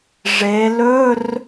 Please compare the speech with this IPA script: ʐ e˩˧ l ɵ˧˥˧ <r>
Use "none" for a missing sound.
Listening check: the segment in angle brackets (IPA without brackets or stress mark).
r